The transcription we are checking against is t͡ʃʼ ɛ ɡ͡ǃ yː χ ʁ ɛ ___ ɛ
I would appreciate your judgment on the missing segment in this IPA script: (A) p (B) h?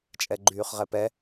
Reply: A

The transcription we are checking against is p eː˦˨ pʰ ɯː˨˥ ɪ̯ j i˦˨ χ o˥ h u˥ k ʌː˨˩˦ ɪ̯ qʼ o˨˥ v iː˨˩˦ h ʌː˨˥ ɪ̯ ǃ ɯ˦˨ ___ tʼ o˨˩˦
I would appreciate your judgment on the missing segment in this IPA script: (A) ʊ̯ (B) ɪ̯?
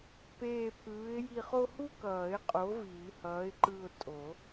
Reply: A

